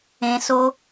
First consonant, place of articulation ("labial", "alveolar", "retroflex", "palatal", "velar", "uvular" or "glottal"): alveolar